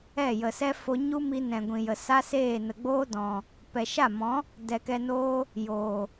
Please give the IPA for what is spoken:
ɛ˦˨jə˨sɛ˦ fo˧ɲu˦mi˧nɛ̃˨ ɡʷĩ˨jə˨ sa˦seː˦˨ nə˨ɡ͡boː˦dɔ̃˨ | pɛ˨ʃa˦˨mɔ̃˨˦ | dɛ˧kɛ˧noː˦ | joː˨

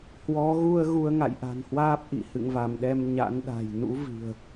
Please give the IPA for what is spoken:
hwɔ˨˦ɣu˧ə̯ ɣu˧ə̯ŋa̰˧˨jʔa̤˨˩nhwaː˦˥p̚ ʔḭ˧˨ hɨ̰˧˨ŋva˧˩mɗɛ˧m ɲa̰˧˥nɗa̤˨˩j nṵ˧˥vi̤˨˩ə̯

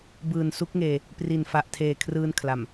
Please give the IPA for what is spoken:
bɯː˨˩nsu˦˥k̚ŋeː˧ | pri˨˩nfa˨˩ʔtʰeː˨˩ kʰrɯː˧nkʰla˨˩m

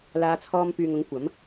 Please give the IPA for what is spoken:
laː˨˧ t͡sʰɔː˧mpyː˨ŋ ʊ˨˥ŋkʷɐ˨˥m

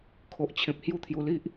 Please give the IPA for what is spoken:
kʰo˨ʔt͡ɕʰẽ˨p̚ hju˥˧t̪ʰju˧li˦ʔ

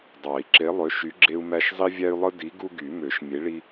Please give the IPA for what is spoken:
dˤɑ˨˩˦i̯ǁe˨˥lˠø˨˥ ʃy˨˥ɡ͡ǁe˦u̯mæ˦ʃ zˤi˦vʲæ˦y̯lˠɯ˦ di˨˥ ɡu˦ɡy˨˩˦mø˨˩˦ʃ mʲe˨˥ɭi˦

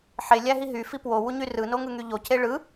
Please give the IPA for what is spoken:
ħelʲæɦi ɦyfi pwowuɲy rɯnoŋɯŋy ʎoce ɭɯ

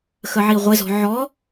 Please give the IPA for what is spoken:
xəʕiʁʷɪzɔ̤ ʕɔ

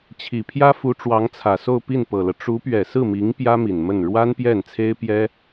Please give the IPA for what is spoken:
t͡ɕʰi˨˩pʰjä˥fu˧˥ ʈ͡ʂwɑ˧˥ŋt͡sʰä˨˩so˥˧ʊ̯ pi˥˩npɤ˨˩lɤ˦ ʈ͡ʂu˧˥pɥɛ˨˩sɹ̩˥˩mi˧˥ŋ pjä˥mi˨˩nmə˥˩n ɻwa˥npjɛ˥˩nt͡sʰe˥ɪ̯pjɛ˥

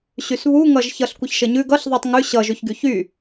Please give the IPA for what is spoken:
ɕysβu ŋʌʒçʌɬ kʷɐçʃəɲʉ ɡʌɬ ðˤɛtˤŋʉ ɕʌ ʒʉçɡyçy

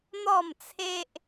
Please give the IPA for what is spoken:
n̪ɔ˥˧mt͡sʰe˦ʔ

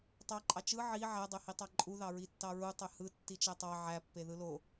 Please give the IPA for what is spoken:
tˤɑǃʼɑ t͡ʃɯ ʕi ʕædˤøhi tˤɑǃʼu ðɑɹitːɑɹu tˤøhɯ tːit͡ʃætˤɑ ʕæpːe ðɯlo

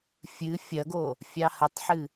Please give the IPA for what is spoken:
fʲɨ fʲɐɡo | fʲɑhətˤħɨ

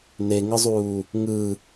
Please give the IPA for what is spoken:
neŋɯzˤuː | ŋɯ

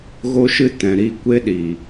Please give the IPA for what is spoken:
ɣo˦ʃɨ˦tɛ̃˨ ɾi˧ kʷe˦ɗi˨

